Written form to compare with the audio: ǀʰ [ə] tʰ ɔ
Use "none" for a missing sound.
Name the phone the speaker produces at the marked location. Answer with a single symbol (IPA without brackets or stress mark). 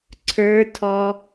ə˞